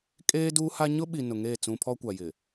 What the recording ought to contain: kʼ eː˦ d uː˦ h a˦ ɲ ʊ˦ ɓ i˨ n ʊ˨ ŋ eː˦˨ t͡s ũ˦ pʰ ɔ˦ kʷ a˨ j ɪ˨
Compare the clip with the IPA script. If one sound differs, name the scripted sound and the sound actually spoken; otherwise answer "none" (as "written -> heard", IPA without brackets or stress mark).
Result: none